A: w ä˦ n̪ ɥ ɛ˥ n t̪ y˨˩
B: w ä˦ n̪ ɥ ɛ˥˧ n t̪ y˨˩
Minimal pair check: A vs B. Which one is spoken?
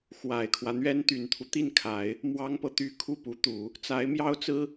A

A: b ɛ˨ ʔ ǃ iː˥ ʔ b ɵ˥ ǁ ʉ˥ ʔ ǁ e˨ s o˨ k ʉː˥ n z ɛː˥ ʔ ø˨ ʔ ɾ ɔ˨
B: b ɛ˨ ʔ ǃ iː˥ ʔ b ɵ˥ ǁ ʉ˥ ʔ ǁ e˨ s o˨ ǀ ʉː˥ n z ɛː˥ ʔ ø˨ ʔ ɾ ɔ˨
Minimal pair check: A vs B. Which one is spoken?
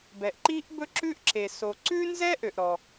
B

